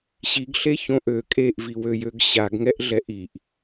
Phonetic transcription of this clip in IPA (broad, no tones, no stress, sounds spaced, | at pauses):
ɕ i ɡ ɬ e ç õ ʔ ø kʼ e ʔ v i w ø j ø ɡ ɕ a ɡ ŋ ɛ ʔ ɮ ɛ ʔ i ʔ